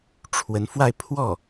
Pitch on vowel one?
rising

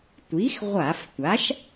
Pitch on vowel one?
rising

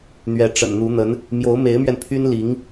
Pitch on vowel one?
rising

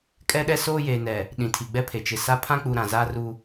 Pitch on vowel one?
high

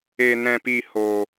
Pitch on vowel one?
low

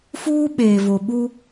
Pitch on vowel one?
high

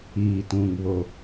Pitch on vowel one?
low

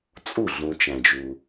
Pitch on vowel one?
falling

